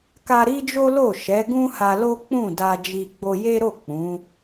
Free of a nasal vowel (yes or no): no